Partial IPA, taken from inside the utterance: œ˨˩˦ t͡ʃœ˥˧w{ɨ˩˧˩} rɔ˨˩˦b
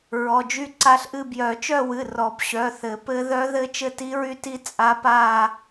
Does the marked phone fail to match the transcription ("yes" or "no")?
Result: no